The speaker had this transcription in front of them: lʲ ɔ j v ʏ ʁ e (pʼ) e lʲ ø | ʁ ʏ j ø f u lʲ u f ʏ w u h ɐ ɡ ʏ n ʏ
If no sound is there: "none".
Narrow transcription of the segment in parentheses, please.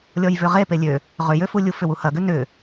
p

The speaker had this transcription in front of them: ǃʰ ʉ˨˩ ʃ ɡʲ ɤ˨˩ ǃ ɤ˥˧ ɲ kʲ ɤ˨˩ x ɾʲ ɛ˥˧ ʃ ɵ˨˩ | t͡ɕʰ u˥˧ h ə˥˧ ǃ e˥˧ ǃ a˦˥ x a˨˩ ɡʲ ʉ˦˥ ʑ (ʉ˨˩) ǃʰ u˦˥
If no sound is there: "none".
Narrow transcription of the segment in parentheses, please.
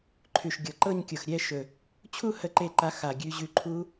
ʉ˦˥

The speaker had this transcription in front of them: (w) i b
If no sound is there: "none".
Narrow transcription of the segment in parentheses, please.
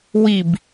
w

